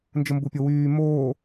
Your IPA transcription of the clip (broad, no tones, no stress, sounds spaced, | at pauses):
n d͡ʒ ə m b u pʲ o w yː m oː